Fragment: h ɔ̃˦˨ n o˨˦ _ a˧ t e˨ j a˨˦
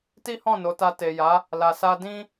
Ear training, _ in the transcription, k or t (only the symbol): t